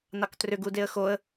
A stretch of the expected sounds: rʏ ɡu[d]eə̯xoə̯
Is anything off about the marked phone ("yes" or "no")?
no